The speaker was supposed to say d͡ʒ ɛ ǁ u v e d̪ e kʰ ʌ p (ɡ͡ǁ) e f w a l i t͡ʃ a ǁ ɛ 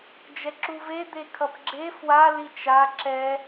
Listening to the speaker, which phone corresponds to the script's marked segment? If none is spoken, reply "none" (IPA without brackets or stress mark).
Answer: ɡ͡ǁ